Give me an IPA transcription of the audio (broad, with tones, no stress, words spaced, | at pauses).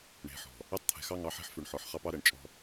ɳe̤˨ħɔ̤˨ | ɛ˦tˤt̪ʰɛ̤˨xɑ˦ ŋɑ˨˦ħe̤˦ħfʉ˨ɳħɔ˨ħ χɑ˦pɑ˦ɾɛ˨ɳ t͡ʃʼɔ̤˦